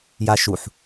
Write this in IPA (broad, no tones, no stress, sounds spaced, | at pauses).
j a ʃ u ħ